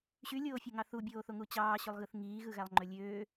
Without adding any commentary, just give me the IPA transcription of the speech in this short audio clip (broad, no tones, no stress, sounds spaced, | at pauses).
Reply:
ɕ y lʲ oː fʲ o ŋ ɑ θ u bʲ oː θ o ŋ u t͡ɕ ɑː ɕ y lˠ ɣ ɯ θ ŋ iː ɣ ɯ ɣ æ lˠ ŋ͡ǃ ø lʲ øː